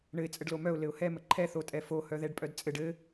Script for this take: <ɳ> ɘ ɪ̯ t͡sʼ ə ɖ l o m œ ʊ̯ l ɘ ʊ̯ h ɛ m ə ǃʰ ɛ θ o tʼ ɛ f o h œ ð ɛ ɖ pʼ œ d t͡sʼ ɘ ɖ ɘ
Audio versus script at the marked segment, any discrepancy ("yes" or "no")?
no